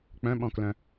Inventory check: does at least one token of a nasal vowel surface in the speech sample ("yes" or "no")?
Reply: yes